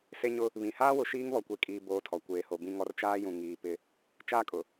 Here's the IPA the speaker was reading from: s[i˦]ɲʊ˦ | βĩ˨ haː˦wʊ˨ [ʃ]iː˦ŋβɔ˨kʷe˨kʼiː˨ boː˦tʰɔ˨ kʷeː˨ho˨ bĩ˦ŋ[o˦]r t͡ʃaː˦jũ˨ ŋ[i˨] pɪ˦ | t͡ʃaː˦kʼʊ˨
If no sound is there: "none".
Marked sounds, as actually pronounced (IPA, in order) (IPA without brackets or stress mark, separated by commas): e˦, ʃ, ɔ˦, iː˨